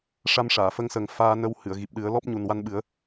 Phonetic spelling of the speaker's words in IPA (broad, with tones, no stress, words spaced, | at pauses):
ʂa˧mʂaː˨˩˨fə˧ŋsə˨˩˦ŋ faː˧nə˧w hɨ˨˩˨ə̯ɣi˨˩p̚ɗɨ˨˩˦ə̯ lɔ˦˥p̚ ɲu˨˩nwa˧nɓɨ˨˩˦ə̯